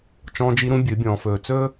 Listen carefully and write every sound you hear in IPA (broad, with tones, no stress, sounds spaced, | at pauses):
t͡ʃ ɔ̃ː˦ d͡ʒ i˦ ɾ ũ˦ bʲ ɨ˨˦ bʲ ɔ̃ː˨ f ɵː˨ t͡s ɵː˦